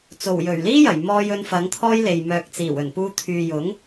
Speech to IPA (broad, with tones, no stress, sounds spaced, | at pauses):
t͡s o˨˩ w j ɵ˨˩ ɥ l iː˥ j ɐ˨˩ j m ɔː˧ j ɵ˧ n f ɐ˨˥ ŋ t̪ʰ ɔː˥ j l e˨ j m œː˨ k̚ t͡s iː˨˩ w ɵ˨˩ n p uː˧ t̪ʰ yː˨ j ʊ˨˥ ŋ